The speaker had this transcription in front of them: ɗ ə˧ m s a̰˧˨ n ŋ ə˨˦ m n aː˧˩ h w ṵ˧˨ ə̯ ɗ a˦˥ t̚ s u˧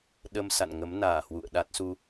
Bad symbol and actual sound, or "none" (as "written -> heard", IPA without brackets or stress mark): none